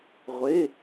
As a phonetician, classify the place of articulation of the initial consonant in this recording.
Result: uvular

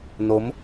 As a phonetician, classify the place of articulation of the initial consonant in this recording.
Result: alveolar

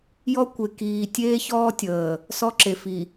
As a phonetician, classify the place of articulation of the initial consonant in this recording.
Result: palatal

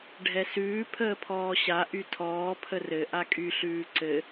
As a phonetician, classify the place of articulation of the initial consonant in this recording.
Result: retroflex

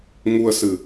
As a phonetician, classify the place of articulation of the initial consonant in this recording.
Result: velar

